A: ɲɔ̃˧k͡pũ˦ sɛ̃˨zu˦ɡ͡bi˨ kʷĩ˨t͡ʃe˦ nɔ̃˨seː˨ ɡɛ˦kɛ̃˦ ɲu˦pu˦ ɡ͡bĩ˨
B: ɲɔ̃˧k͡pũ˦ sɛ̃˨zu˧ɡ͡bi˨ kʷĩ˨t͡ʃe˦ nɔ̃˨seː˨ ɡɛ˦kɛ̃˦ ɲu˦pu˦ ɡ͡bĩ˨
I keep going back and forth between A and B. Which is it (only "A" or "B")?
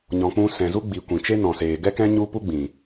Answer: A